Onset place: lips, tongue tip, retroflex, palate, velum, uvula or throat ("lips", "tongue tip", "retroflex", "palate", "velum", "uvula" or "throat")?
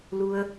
tongue tip